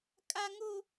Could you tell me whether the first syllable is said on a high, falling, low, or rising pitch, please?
high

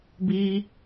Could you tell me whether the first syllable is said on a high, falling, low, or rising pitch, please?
high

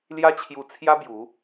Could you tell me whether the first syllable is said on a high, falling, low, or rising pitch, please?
high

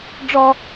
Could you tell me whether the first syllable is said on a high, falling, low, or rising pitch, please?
high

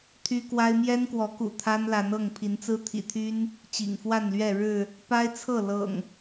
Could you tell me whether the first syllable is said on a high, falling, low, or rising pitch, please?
high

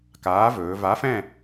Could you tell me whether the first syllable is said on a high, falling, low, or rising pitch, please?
rising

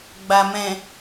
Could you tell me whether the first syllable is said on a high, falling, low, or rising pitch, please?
low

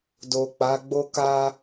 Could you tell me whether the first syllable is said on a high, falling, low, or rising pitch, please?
low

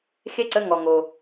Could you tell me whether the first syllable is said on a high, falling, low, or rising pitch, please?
falling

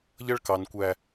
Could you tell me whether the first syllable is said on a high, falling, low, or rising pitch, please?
high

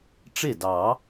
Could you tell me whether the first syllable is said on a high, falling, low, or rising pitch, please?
falling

